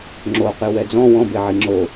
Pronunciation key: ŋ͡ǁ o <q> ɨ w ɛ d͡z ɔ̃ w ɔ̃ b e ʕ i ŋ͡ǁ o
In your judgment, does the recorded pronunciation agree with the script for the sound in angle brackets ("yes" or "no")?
yes